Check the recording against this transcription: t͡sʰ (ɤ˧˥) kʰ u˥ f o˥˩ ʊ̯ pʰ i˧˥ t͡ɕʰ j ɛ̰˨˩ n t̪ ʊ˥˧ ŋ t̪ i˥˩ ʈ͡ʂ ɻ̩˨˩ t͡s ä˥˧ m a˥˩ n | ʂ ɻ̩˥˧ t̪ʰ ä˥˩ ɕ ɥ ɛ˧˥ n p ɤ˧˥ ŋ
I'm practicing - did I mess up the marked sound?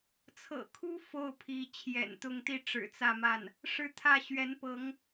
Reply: yes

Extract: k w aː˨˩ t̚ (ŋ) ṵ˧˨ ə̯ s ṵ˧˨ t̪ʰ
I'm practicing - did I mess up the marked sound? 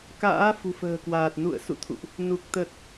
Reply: yes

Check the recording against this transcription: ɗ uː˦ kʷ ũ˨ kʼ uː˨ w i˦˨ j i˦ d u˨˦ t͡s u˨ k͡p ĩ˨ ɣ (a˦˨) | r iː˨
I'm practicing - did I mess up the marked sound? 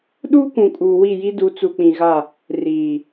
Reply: no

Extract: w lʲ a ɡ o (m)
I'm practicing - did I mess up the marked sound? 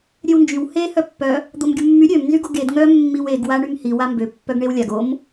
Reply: no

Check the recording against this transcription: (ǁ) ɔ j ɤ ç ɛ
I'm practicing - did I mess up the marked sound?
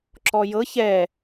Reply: no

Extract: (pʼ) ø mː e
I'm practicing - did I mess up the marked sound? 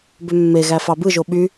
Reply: yes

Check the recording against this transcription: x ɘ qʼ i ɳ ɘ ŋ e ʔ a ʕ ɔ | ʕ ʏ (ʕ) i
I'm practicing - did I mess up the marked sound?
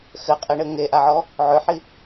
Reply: yes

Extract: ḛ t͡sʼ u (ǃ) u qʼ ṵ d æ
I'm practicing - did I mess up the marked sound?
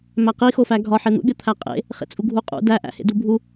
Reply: yes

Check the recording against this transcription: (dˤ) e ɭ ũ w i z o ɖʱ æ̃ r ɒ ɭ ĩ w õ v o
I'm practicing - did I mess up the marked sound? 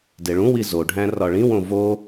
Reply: yes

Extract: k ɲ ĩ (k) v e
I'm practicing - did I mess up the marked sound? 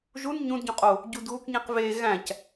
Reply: yes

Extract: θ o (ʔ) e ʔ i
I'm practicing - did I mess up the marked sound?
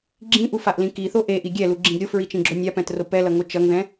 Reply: no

